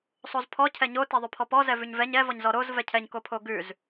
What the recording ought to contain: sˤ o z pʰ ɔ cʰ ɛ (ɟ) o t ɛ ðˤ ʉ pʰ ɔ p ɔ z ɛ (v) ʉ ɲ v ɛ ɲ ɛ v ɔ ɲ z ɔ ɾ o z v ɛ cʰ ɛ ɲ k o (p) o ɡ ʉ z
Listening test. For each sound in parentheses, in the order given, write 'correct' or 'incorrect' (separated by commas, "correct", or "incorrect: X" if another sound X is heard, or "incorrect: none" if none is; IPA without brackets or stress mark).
incorrect: ɲ, correct, incorrect: pʰ